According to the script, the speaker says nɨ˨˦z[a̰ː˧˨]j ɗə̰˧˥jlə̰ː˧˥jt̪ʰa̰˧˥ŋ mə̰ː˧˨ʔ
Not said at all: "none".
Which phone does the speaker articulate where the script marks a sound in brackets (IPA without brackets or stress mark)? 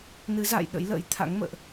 a̰ː˧˨